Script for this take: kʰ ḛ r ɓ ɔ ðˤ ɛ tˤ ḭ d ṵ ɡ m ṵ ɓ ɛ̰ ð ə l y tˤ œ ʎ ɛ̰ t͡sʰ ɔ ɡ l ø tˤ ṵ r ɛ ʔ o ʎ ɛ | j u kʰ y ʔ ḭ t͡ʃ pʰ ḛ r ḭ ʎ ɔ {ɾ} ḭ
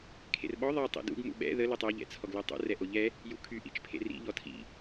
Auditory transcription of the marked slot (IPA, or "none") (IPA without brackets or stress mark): tʰ